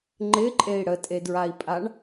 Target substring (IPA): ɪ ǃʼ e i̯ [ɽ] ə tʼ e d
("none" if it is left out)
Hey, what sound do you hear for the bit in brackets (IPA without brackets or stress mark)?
ɽ